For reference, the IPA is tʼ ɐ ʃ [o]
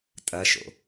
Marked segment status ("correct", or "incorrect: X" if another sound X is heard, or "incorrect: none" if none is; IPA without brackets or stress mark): incorrect: o̰